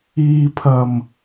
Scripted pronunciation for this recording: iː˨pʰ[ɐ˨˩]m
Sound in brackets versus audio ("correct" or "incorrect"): correct